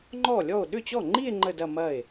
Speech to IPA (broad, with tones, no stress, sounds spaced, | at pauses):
ŋ͡ǃ ɔ˥˩ lʲ ɔ˥˩ o̯ ɗ ʏ˥˩ t͡ɕ ɔ˥˩ ŋ͡ǃ i˥˧ e̯ ŋ͡ǃ ə˥˧ d ɐ˥˧ m ɐ˥˩ e̯